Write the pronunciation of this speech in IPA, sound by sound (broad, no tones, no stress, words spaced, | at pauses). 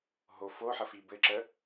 ɦo foħəfi bɘǁə